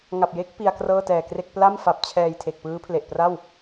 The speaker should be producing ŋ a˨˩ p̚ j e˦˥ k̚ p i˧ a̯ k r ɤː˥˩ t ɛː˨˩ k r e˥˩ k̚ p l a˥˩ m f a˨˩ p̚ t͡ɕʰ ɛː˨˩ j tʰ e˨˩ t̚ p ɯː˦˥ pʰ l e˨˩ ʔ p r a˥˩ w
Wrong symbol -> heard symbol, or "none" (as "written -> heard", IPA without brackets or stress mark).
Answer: t̚ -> k̚